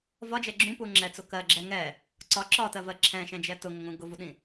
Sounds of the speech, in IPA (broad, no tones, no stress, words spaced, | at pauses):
vɒd͡ʒɛ ɡ͡ǁũpu ŋ͡ǁɛt͡sʊ kɜɡ͡ǁɛ ŋɛ | ǀɒ ǁɒtɜvɜ ǁʰɛ̃ʃɛ̃d͡ʒɛ tʊŋʊŋũ ɡʊvuɗĩ